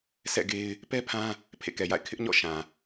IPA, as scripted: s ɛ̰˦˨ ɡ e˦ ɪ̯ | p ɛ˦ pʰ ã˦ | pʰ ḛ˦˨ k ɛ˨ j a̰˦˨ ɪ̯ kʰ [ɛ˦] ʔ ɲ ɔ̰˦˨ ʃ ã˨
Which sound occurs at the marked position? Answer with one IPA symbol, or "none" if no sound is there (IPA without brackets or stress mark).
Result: ɪ˦